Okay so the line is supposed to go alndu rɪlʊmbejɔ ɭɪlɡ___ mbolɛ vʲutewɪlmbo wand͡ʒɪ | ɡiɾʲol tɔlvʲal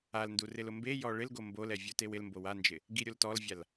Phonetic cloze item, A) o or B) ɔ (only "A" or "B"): A